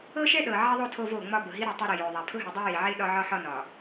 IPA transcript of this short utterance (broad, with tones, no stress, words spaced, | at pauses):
ɤ˦ʃɛ˦ ɗɤ˨ʕɛ˦ðˤo˦ tʰo˦vo˦˨ŋ͡mɒ˦bʊ˨ ɦi˦ɾɨ˦˨tˤo˦ɾe˨ jo˨ðˤa˨ pʰʊ˦ɦɨ˨ dˤɤ˦ji˨ʕe˦ ɗɒ˦ʕɒ˦ħɒ˦ nɒ˨